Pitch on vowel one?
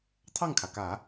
falling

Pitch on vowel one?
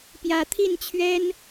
rising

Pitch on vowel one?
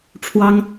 high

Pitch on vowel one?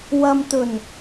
low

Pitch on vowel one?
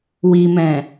low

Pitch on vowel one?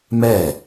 falling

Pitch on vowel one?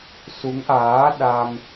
rising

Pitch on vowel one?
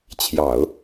low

